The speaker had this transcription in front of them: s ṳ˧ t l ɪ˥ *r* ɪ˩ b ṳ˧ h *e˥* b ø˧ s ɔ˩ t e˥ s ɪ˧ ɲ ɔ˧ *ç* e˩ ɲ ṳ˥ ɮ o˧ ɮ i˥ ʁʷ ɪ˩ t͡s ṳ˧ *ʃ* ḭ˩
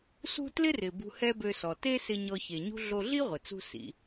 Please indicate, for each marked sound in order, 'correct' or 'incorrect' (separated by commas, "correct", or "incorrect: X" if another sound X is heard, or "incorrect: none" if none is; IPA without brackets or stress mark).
correct, incorrect: ɛ˥, correct, incorrect: s